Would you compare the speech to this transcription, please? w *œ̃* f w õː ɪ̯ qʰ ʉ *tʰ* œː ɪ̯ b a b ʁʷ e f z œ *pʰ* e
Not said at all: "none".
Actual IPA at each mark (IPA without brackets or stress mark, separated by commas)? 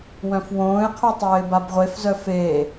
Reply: œ̃, tˤ, f